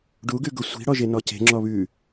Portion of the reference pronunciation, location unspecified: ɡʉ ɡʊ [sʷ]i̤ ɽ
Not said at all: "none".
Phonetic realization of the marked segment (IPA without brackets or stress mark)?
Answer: sʷ